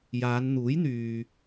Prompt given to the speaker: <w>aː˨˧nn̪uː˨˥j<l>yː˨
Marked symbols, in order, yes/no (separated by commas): no, no